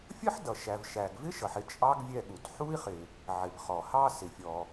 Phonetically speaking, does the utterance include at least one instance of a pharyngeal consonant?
yes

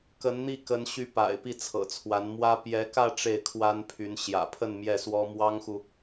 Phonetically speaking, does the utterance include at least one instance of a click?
no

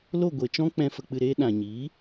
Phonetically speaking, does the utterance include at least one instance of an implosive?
yes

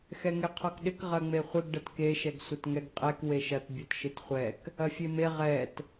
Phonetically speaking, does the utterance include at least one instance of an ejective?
yes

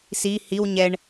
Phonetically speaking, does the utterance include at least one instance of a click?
no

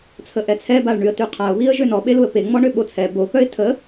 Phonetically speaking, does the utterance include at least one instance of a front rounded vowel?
yes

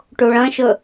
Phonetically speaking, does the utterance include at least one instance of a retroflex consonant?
yes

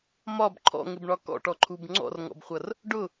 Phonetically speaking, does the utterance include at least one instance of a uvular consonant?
yes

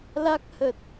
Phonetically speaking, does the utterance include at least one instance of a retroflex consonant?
no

